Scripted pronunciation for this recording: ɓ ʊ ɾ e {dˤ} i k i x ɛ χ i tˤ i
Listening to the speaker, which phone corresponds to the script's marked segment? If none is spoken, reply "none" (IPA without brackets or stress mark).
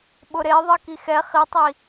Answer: ðˤ